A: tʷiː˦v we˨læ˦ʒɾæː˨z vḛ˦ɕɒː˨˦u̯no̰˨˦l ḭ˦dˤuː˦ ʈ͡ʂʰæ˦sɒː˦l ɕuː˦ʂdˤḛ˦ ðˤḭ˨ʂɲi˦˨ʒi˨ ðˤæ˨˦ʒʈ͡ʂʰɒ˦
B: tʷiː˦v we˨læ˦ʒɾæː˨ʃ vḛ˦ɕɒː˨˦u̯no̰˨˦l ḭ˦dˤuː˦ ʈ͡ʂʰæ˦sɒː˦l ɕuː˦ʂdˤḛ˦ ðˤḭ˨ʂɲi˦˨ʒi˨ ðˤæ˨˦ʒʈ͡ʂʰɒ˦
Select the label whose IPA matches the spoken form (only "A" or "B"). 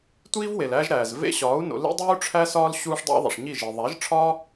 A